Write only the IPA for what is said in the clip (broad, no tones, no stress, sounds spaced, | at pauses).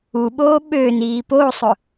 u ɓ oː ɓ ø n iː p o sˤ ʊ